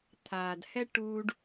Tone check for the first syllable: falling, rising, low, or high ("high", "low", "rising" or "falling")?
low